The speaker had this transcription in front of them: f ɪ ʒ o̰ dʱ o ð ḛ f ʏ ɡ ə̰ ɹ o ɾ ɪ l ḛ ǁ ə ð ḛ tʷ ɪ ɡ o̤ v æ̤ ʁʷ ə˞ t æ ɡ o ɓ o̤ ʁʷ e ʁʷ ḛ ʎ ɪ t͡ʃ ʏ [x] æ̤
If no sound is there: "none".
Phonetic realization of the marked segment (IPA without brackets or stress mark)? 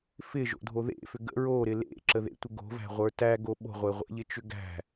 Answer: ɡ